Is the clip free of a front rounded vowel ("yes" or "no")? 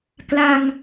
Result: yes